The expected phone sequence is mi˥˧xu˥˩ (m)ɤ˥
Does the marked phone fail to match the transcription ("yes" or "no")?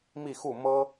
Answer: no